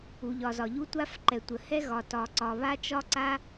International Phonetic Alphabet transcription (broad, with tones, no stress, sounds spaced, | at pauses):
u˩ ʎ ɒ˩ z ɒ˩ ʎ u˥ tʷ a˥ f ǃ ɛ˩ tʷ ə˩ h ɛ˥ ɣ ɒ˩ t ɒ˩ ǀ ɒ˩ β a˥ t͡ʃ ɒ˥ ǀ a˥